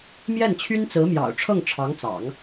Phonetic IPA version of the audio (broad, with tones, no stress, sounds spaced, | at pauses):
m j ɛ˥˩ n t͡ɕʰ y˥ n t͡s ɹ̩˧˥ m j ɑ̰˨˩ ʊ̯ ʈ͡ʂʰ ɤ˥˩ ŋ ʈ͡ʂʰ ɑ˧˥ ŋ t͡s ɑ̰˨˩˦ ŋ